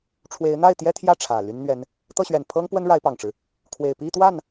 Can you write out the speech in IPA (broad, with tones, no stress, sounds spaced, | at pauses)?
ʈ͡ʂʰ w e˧˥ ɪ̯ n̪ a˥˩ ɪ̯ t̪ j ɛ˥ t̪ʰ j ä˥˩ ʈ͡ʂʰ ä˨˩ l y˥ n n̪ ɥ ɛ˥ n | t̪ ɤ˥˩ ɕ ɥ ɛ˨˩ n pʰ ɤ˥ ŋ p w ə˥ n ɻ a˧˥ ɪ̯ p ɑ˨˩ ŋ ʈ͡ʂ ɻ̩˦ | kʰ w e˨˩ ɪ̯ p i˥˧ t̪ w a˥˩ n